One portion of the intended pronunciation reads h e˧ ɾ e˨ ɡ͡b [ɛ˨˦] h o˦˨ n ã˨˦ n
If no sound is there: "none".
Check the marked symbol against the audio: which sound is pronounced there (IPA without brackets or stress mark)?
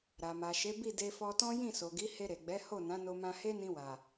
ɛ˨˦